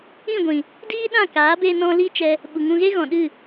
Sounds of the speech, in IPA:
ĩ˦˨ ɡʷ ĩ˨ | d iː˦ ɗ ã˦˨ k aː˨˦ b e˧ n ɔ̃˧ l i˦ t͡ʃ ɛ˧ | ɓ u˨ ŋ ũ˧ ɣ e˦ ɣ ɔ̃˨ ɗ ɨ˦˨

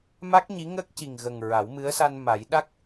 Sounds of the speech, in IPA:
m a˦˥ k̚ ɲ i˧˥ ŋ ə˦˥ k̚ c i˨˩ ŋ ɣ ə˨˩ ŋ ɹ a˨˩˦ w m ɨ˧˥ ə̯ s a˧ n m a˨˩˦ j ɗ a˦˥ k̚

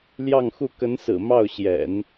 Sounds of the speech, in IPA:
l j ɑ˥˧ ŋ x u˥˩ k ə˧˥ n s ɹ̩˨˩ m ɑ˥˩ ʊ̯ ɕ j ɛ̰˨˩˦ n

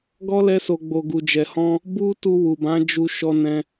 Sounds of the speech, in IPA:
ɡ ɔ˦ l ɛ˧ s o˨ ɡ͡b o˨ ɡ u˨ d͡ʒ ɛ˨ h ɔ̃˧ | b u˦ t u˧ w u˨ b ã˨˦ d͡ʒ u˧ ʃ ɔ˧ n ɛ̃˧

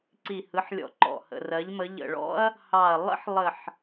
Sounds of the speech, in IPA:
ǀ i˨˩ h ɯ˩˧ ħ lʲ ɔ̰˨˩ ǃ ɔ̰˨˩ h ə̰˨˩ r ɜ˩˧ ʎ m ə˩˧ ʎ ə̰˨˩ ɭ ɔ̰˦ ɐ̯ | h ɑ˨˩ ɐ̯ lˠ ə̰˦ ħ lˠ ə˨˩ ħ

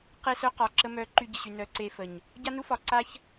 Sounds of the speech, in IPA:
q e˦ s œ˦ q ɒ˨ ǁ ə˧ m œ˨˦ ǃ y˧ ɟ ə˨ ɕ y˨ n œ˨ ǀ e˦ f ə˨ ɲ | ɟ a˦ n u˦ f ɒ˨ ǀ a˦ ç

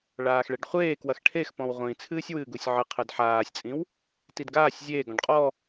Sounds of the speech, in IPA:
ɭ aː x ɭ ɛ ɖ χʷ eː k w ɐ x ʈʰ e x p ɔ̃ w ʁʷ ĩ t͡sʰ ɨː sʲ w ɨː ɡ u sʲ ʕ ɨ qʰ ɨ d ħ aː sʲ t͡sʼ ĩ w | t i d ɡ aː sʲ zʲ eː ɡ ɔ̃ ɖ qʼ ɔ

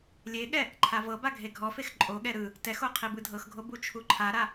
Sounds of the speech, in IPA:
lʲ e ɠ ɛ | ǃʰ a v ɤ b a ɡʱ e ɡʱ ɔ f e x ǃʼ o ɠ ɛ ɾ ɯ | t ɛ x o qʰ i b ɯ dʱ ɤ x ɡʱ o b u t͡ʃʰ u ǃʰ a ɾ a

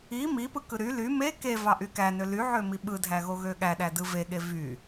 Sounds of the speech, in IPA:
i m i p ɯ k ɯ ɾ y l y m e k e v ɑ ʔ y k æ n ø l y ʕ ø m i ɓ ɯ dʱ æ ɣ o ɣ ø ɠ æ ɗ æ d ɯ v e ɠ e v y

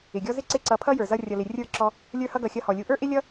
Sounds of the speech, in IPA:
ɪ˨ ɡʲ ɔ˦ z ɪ˦ ǀ ɪ˦˨ ǀ ʌ˧ pʰ ʌ˦ j ə˞˨ z ʌ˧ rʲ ʌ˨ l ɪ˨ rʲ ə˞˦˨ ǁ ɔ˧ | lʲ ə˞˧ h ʌ˧ ɡ ʌ˨ xʲ ʌ˧ h ɔ˨ lʲ u˧ ʔ ə˞˦ ʔ ɪ˦ lʲ ʌ˦

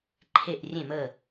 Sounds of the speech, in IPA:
ǃʰ e˥˨ ʔ rʲ ẽ˥˨ m ə˥˨

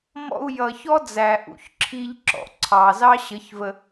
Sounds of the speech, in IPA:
m ɔ̰˧ u̯ j ʌ˨ ç ɔ˦ d͡z æ˨ ʔ ṵ˧ ç ǁʰ i˧ ʎ ǁ ɔ̰˨ ǀʰ ɑ˨ z ɑ˦ ɕ ə˨˦ ç v ə˧

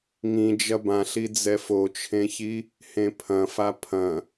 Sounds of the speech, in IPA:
ŋ ĩ d͡ʒ ɐ b ã ɬ i d͡z ɛ f o t͡ʃʰ ẽ ç i | h ẽ pʰ ɐ̃ f a pʰ ɐ̃

